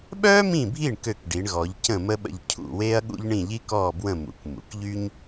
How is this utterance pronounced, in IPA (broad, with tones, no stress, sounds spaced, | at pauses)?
ɓ œː˥ m ĩ˦˨ bʱ i˦˨ ɳ k ø˦˨ k ɖ i˩˧ ɳ ɣ ɔ˩˧ ʎ c ə̃˦˨ m ə˥ ɓ ə̰˦˨ ʎ cʰ ṵ˦˨ w eː˥ ɐ̯ ɠ ṵ˥ ʎ ɳ ĩ˦˨ ʎ i˥ k ɔː˦˨ b w ə̃˦˨ m ṵ˩˧ k m ṵ˩˧ k ʎ y˥ ɲ